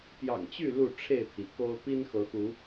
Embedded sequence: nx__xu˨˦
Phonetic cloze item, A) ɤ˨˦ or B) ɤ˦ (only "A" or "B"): A